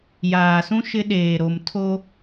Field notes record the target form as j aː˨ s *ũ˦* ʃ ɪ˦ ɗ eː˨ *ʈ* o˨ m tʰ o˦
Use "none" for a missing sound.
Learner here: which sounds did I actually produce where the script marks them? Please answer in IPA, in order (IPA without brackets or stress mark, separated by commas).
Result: ũ˦, ɾ